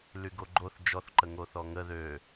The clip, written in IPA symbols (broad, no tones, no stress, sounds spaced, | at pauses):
l y ɡ o ɡ͡ǃ o θ d͡ʒ ɔ θ ǃ ə ŋ o θ ɔ ŋ ə ð ø